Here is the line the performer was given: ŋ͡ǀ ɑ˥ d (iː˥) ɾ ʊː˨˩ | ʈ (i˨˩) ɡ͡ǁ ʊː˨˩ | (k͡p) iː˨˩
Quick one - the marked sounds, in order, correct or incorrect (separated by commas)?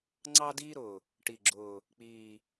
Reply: correct, correct, correct